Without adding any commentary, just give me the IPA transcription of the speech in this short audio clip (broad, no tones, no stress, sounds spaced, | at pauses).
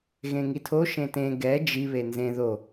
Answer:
ɣ ẽ ŋ i tʰ o ʃ ẽ t ẽ ɡ ɛ d͡ʒ i β e n z ẽ ð o